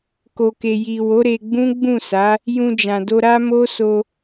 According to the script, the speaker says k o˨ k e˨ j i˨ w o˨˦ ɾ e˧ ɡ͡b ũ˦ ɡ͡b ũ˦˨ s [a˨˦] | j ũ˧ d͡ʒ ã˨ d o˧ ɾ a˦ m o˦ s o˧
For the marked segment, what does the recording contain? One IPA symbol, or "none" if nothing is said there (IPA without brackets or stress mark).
a˨˦